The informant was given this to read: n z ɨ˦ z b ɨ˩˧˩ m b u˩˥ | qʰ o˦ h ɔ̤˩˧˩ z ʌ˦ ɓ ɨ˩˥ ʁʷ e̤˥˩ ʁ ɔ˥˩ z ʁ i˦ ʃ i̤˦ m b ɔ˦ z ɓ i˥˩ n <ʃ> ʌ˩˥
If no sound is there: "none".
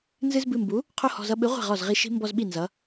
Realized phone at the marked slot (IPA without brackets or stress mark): z